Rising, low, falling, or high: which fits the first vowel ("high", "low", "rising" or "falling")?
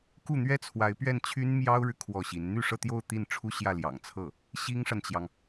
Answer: falling